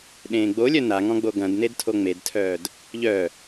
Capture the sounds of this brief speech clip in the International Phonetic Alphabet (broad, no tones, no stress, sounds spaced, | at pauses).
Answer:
ɗ ẽː ɡ͡b o lʲ œ n a ŋ ɔ̃ ɡ͡b o ɡ ɐ̃ d n e d tʰ o ŋ͡m e d tʰ œː d | ʎ œ